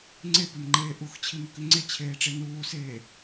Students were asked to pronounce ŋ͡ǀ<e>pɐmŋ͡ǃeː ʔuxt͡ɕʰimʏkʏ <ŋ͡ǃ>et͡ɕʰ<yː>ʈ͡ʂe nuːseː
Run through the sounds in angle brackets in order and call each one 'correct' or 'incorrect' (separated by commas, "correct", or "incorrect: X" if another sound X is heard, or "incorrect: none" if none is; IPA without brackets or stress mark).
correct, incorrect: ŋ͡ǀ, incorrect: eː